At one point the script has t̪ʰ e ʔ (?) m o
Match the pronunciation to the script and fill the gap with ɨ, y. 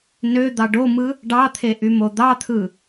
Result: y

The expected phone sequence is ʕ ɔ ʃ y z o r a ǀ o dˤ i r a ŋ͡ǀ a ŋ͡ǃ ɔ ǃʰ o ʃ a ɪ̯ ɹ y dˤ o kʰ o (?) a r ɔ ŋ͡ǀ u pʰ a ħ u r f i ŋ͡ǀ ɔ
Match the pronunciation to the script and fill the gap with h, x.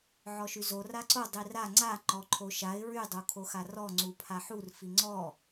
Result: x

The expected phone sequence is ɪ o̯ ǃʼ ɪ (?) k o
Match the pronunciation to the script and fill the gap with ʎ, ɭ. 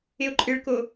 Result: ɭ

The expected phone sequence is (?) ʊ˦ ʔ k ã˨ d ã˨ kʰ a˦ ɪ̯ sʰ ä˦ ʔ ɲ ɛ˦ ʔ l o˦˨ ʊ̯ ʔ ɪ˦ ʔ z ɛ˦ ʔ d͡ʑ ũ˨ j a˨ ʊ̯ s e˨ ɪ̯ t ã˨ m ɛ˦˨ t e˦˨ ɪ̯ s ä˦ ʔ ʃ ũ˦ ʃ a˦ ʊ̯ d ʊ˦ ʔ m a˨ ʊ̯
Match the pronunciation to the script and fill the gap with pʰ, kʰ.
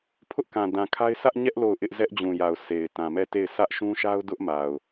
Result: pʰ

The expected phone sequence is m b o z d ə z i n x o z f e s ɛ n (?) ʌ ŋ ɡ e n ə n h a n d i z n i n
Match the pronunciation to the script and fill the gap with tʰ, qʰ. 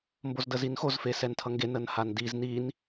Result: tʰ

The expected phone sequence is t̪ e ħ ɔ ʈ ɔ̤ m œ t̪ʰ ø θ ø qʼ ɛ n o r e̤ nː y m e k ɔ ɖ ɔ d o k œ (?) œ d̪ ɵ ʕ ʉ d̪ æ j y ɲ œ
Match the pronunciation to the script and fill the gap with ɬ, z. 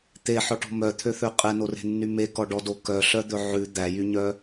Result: ɬ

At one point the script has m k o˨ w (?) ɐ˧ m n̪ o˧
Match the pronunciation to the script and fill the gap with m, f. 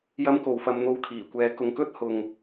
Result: f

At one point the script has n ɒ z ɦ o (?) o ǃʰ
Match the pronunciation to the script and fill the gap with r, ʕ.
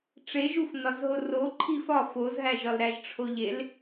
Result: r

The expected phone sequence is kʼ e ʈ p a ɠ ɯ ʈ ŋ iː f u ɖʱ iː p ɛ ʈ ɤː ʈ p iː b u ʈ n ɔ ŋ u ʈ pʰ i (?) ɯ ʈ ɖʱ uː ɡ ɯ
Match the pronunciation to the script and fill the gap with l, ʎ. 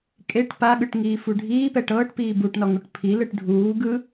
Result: l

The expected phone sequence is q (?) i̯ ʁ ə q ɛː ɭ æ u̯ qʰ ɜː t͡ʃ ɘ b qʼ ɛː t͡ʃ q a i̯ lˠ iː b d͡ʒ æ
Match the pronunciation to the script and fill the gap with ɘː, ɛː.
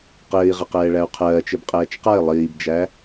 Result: ɘː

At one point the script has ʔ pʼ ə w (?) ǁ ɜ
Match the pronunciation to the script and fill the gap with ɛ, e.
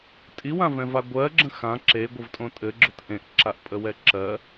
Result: ɛ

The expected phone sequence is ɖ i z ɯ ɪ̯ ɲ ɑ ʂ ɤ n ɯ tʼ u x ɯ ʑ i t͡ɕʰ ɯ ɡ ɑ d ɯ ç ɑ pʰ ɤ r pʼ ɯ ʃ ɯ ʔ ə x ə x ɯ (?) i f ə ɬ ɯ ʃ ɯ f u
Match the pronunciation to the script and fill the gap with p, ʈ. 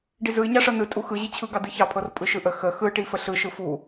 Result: ʈ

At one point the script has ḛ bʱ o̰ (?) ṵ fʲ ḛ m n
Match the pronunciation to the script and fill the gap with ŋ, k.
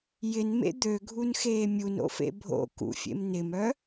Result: k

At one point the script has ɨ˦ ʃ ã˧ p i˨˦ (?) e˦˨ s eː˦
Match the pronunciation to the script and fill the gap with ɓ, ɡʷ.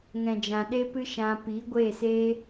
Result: ɡʷ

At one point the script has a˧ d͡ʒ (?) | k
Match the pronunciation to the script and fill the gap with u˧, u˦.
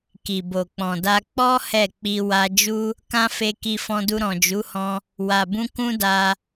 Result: u˦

